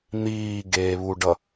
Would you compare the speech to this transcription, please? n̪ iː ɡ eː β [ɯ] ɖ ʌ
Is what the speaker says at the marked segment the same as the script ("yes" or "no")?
no